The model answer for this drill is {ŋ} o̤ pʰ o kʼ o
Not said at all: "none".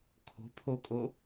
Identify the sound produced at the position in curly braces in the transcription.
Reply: kʰ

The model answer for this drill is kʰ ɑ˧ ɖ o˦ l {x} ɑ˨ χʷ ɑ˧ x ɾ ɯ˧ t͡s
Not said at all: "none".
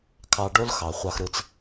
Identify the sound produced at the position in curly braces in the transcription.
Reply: x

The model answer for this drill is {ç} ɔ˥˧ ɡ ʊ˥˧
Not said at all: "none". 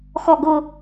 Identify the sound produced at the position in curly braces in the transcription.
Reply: x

